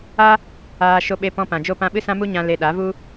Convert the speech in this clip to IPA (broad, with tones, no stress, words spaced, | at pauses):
a˦ | aː˧ ʃo˧ɓe˧ pɔ̃˧ pã˨d͡ʒo˦˨ pã˧ɓɨ˦ sã˦mu˦ɲã˧ le˧ɗa˨˦ vu˦